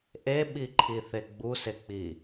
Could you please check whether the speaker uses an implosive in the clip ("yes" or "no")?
yes